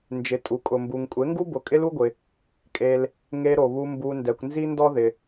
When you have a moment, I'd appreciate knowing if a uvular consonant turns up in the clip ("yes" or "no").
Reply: no